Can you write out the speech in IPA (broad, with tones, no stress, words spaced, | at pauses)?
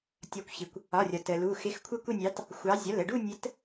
tʲɒ˨˥kʷçi˩kʷ | ɒ˩˧˩rʲɒ˩ tə˩lu˩˧˩ xɪ˨˥xkʷʰə˥˧kʷɪ˥˧nʲɑ˨˥t | xʷɑ˨˥ zʲɒ˩˧˩lə˩˧˩ɖu˥˧nʲə˨˥t